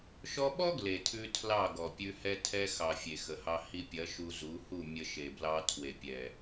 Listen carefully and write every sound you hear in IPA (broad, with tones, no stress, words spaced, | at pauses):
ʃɔ˧ɓɔ˦ ɡle˨tʰʉ˧ tʰlɑ˦˨ɡɔ˨ pʲʉ˧ hɛ˧ tʰɛ˧ xɑ˨ fʲe˨xə˨hɑ˧ hi˧pʲɐ˨˦ ʃu˧zu˨˦ hu˦˨ mʲə˧ʃe˨ blɑ˧tʰwe˨pʲɛ˨